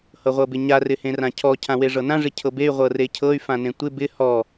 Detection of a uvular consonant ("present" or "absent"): present